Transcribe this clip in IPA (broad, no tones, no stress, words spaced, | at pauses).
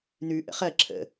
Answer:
nʉ ʔə̰χɜ ǁʰə̰